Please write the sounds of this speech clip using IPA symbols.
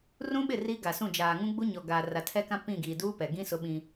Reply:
r ũ˦ ɓ ɪ˦˨ r iː˦ ɡ a˨ s ũ˦˨ d͡ʒ aː˨ ŋ ũ˦ ɡ͡b u˦ ɲ ɔ˨ ɡ aː˨ r a˨ tʰ ɛ˦ k ã˦ p ĩ˦˨ ɡ iː˨ d uː˦ p ɛ˨ ɡ ĩ˦ s ʊ˦ ɓ ĩ˦

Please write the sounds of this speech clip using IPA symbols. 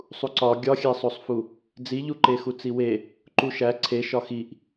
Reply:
sˤ u ǀ ɒ ɡʲ ɒ xʲ æ sˤ o sˤ f u | d͡z i ʎ u ǃ e x u t͡s i w e | ǃ u ʃ æ ǀʰ e ʃ ɒ x i ʔ

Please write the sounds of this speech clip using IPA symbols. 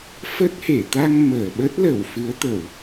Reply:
f ə˦˥ t̚ h e˧˩ t̪ a˧ ŋ m əː˧˩ ɓ ə˦˥ t̚ l ə˧˩ w f ɨ˨˦ ə̯ t̪ ə˧˩˨ w

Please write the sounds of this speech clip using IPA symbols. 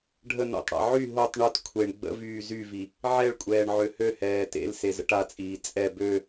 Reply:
ɖʱ ə n o̰ tˤ ɽ a̰ ʕ y ɦ o tˤ ɳ o t kʷʰ e ɳ ɡ͡b ə̰ v yː z y v i | ʕ ɛ ɭ kʷʼ ɛː ɳ ʕ ø h ø h ɛː t ḛ l s e z ə̰ ʈ a t͡sʼ iː t͡sʼ ɛ b ø

